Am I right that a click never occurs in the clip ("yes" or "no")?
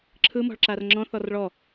no